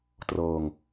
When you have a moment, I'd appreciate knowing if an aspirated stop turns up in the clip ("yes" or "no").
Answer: no